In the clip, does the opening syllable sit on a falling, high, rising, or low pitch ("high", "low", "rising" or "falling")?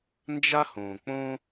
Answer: high